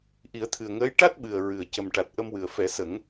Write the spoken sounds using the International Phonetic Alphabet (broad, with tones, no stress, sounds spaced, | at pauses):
ʔ i˨˩˦ ə̯ t̪ʰ ɨ˨˩ ə̯ ŋ əː˧˥ j ʈ a˦˥ t̚ ɓ ɨ˨˩ ə̯ ɹ ɨ˨˩ ə̯ c ə˨˩ m ʈ a˨˩ t̚ ʔ ə˧ m w ɨ˨˩ ə̯ f ɛ˨˩˦ s ə˨˩˦ ŋ